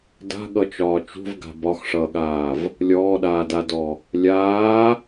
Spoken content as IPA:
d a̤ ɠ ʌ t͡ʃ ɒː t͡ʃ ṳ v ɡ a̤ b ɒ x ʂ ʌː ɠ aː v | lʲ ɔː ɗ aː d a d ɔ | lʲ aː

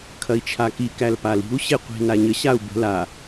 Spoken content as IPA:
kʰ ɐ i̯ t͡ʃʰ a k i k æ l p a l i̤ u̯ ɕ e qʷ i̤ n a ɲ ə ɕ a u̯ b ə̤ l a

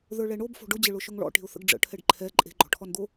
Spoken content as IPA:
ð ə˞ ɭ ɛ ɳ o b f o̤ ɖ ʊ d͡ʑ ɘ ɭ ʊ ʃ ʊ ŋ ɭ ɔ̰ ʈ e̤ ʊ̯ θ ə̰ ɡ ɖ͡ʐ ə̰ ʈʰ ɛ ɖ ǃʰ ɛ ǃʼ e̤ ɡ͡ǃ ɔ̤ ʈʰ ɔ n d̪ o

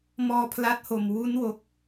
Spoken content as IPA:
m ɔː˧ pʰ l a˦˥ t̚ h o˨˩ m w u˦˥ n w o˦˥ k̚

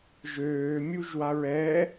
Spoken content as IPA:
ʒ øː mʲ u ʒ w a ɹ ɛ

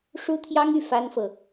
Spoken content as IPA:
ʂ u˥ t̪ʰ j ɑ˥ ŋ y˥˩ f a˥ n f ɤ˨

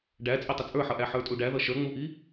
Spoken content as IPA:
ɖ æ t͡sʼ ɪ tˤ ɪ t͡sʼ ə˞ ħ ʌ ʔ æ ħ ə˞ tʼ u ɖ æ ð ʌ ʃ ə˞ ŋ͡m u ʔ i

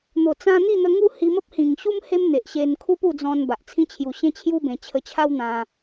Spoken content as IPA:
n̪ o˨˩ t͡s ã˧ n̪ i˥˧ n̪ ə˧ ŋ u˥˧ h i˧ m ə˦ p̚ h ĩ˨˩ ŋ ɕ u˦ m h e˦ m n̪ e˨ ʔ ɕ e˧ n kʰ u˦ p u˥˧ d͡z ɔ̃˧ n b a˨ ʔ t͡sʰ ĩ˦ t͡ɕʰ j u˧ ɕ ẽ˦ t͡ɕʰ j u˦ b ẽ˧ t͡ɕʰ ə˧ t͡ɕʰ a˦ w n̪ ã˧

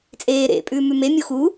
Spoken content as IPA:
t͡sʼ eː ɾ ḛ pʼ ʉː m ʉ m e mʲ u x u

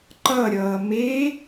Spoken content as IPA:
ǃ ʌ ɾʲ ʌː m e

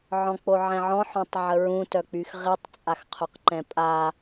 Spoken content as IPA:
ʕ ɔ̃ k͡p o ʕ ɛ̃ ʕ ɔ̃ ħ ɔ̃ tˤ ʕ ə ɹ ũ t œ k͡p y x ʁ i tˤ t͡sʼ a x qʰ o q ǃ ɛ̃ pʼ a

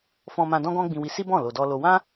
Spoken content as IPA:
f ɔ̃˧ m ã˧ d ɔ̃˦ ɡ ɔ̃˦ ɡ͡b ĩ˧ w i˧ s i˦ b ɔ̃˦˨ l o˧ d ɔ˦ l o˦ w ã˦

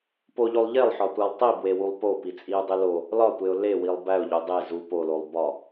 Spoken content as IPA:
p o ʎ o lˠ ʎ e lˠ ħ ɒ tʷ æ lˠ tˤ i b w e w u lˠ p o p i t͡sʼ i ʊ̯ dˤ e l o | l ɒ tʷ e ʊ̯ l e w i lˠ b æ ʊ̯ ʎ o dˤ e z u p o l o lˠ b ɒ

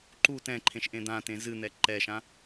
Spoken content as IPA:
ǃ u t ɛ̃ ǃʰ ẽ ʃ ʔ ẽ d̪ ã t ẽ z ɨ n̪ ɛ ǃ ɛ ʃ ã

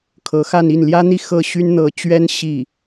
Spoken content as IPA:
kʰ ɤ˧˥ x a˥˧ n i˥˩ n l j ä˥ n̪ i˥˧ x ɤ˥˩ ɕ y˥ n n̪ ɤ˧˥ t͡ɕ ɥ ɛ˥ n ɕ i˥˩

